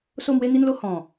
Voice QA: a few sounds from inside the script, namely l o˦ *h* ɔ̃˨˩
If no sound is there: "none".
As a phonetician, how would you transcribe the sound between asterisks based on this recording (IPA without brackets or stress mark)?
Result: h